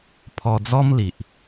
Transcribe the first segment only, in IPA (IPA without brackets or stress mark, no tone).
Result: pʰ